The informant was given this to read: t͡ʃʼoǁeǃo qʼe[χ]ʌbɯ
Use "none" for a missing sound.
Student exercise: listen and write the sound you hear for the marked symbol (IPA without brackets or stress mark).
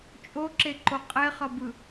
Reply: χ